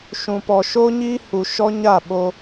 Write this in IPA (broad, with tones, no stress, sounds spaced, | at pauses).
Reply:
ʃ ũ˧ p ɔ˧ ʃ oː˦ ɲ iː˦ h u˧ ʃ ɔ˦ ɲ a˦˨ ɓ o˧